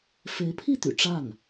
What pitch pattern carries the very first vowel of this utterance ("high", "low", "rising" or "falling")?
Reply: rising